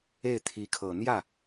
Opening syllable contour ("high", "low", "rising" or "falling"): falling